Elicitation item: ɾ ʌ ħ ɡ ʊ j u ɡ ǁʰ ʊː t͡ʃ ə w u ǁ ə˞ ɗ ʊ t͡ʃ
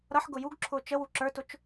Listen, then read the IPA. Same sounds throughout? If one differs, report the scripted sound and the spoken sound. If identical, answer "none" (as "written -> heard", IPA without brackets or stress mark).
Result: ɗ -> t